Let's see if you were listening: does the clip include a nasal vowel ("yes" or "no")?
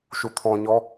yes